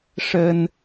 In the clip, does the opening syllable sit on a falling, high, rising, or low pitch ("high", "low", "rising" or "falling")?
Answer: high